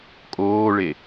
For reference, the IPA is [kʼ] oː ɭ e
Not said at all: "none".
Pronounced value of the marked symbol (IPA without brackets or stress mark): kʼ